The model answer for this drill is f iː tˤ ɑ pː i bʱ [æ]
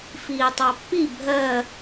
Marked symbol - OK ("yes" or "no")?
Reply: no